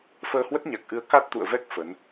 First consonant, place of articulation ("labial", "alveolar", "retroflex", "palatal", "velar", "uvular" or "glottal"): labial